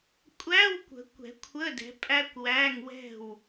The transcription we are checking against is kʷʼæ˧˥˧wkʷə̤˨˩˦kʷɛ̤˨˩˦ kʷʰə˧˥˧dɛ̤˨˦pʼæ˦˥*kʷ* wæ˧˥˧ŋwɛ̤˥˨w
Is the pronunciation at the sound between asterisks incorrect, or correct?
correct